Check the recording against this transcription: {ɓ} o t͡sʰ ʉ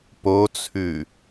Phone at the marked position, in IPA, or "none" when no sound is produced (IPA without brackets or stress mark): p